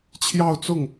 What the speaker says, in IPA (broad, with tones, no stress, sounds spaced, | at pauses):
t͡ɕʰ j ɑ˥˧ ʊ̯ t͡s ʊ˥˩ ŋ